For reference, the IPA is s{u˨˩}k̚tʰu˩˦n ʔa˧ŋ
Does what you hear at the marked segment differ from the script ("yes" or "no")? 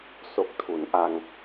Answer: yes